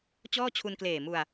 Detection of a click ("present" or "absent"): absent